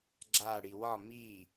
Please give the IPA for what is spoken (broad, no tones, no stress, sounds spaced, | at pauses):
ɡ͡ǁ a ɽ i w ɒ m i